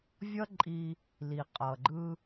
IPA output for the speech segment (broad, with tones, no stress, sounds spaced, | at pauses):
vʲ ʌ˥ ǃʼ i˧ | l i˩ qʼ ʌ˩ ɡ͡ǃ ɯ˧